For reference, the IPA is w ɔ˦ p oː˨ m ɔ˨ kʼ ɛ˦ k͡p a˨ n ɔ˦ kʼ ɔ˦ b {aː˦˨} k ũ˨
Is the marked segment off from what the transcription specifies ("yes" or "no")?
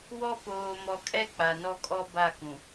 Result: yes